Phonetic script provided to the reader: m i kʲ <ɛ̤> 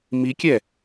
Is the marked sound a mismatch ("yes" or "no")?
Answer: yes